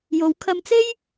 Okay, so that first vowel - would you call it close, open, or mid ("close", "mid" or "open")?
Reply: mid